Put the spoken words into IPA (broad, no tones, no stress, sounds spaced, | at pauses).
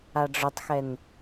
a ɖ͡ʐ œ tˤ x ɛ n